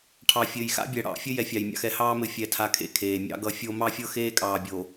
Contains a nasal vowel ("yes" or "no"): no